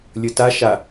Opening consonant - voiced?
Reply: yes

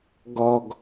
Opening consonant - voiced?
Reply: yes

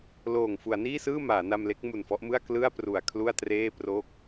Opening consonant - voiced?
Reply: yes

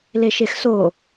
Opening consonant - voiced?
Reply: yes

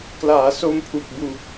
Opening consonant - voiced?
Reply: no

